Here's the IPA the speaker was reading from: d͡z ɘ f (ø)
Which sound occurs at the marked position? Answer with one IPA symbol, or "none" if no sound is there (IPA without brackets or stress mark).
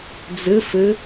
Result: ɘ